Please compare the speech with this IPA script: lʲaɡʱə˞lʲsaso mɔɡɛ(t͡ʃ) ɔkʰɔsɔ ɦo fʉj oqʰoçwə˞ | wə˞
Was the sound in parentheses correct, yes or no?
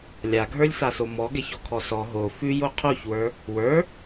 no